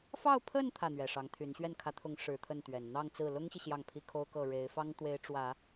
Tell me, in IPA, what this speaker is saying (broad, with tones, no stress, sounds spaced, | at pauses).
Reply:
f ɑ˥˧ ʊ̯ pʰ ə˥˧ n t̪ʰ ä˥˩ n̪ ɥ ɛ˨˩ ʂ ɑ˧˥ ŋ t̪ʰ y˧˥ n ɕ ɥ ɛ˥˩ n kʰ ä˧˥ t̪ʰ ʊ˧˥ ŋ ʂ ɻ̩˧˥ t̪ʰ ə˥˩ n t̪ ɥ ɛ˨˩ n n̪ ɑ˥˧ ŋ t͡s ɹ̩˥˩ l ʊ˥ ŋ ɕ i˨ ɕ j ɑ˥˩ ŋ pʰ i˥ kʰ o˥ ʊ̯ k ɤ˥˩ ɻ e˧˥ ɪ̯ f ɑ˥ ŋ t̪ w e˧˥ ɪ̯ ʈ͡ʂ w ä˨˩˦